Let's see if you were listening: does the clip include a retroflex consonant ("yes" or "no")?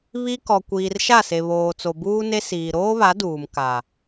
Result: no